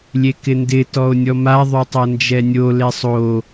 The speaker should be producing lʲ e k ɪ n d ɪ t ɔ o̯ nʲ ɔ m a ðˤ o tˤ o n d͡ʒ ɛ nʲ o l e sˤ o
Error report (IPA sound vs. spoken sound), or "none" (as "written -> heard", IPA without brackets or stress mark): none